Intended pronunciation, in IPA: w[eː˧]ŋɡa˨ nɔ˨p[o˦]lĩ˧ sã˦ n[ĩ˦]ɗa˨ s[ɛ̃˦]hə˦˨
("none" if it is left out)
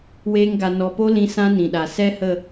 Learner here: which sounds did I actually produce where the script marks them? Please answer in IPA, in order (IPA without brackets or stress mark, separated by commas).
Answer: eː˧, o˦, ĩ˨, ɛ˦